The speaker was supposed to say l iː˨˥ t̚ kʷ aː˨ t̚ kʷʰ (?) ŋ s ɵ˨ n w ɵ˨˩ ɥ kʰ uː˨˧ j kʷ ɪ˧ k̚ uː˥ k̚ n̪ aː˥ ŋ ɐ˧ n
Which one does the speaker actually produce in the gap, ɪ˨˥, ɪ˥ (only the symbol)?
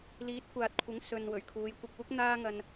ɪ˨˥